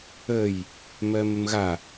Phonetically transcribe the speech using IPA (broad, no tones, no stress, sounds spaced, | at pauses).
ə j | m ɜ m ə m ɣ a